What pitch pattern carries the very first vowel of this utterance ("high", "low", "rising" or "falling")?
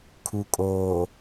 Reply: low